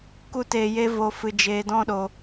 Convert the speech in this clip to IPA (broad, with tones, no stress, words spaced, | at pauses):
ku˦teː˧je˦ vo˧ fɨ˧d͡ʒeː˧ dɔ̃˦ɗo˧